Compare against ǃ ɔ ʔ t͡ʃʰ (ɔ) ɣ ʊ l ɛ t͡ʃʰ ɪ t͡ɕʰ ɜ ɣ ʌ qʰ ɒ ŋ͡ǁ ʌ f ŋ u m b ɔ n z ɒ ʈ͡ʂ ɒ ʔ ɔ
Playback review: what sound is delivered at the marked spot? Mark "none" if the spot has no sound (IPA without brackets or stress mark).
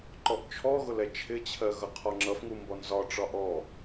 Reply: ɔ